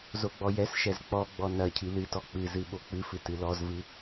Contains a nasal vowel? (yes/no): no